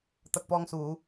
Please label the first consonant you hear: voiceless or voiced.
voiceless